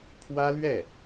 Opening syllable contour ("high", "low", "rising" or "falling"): high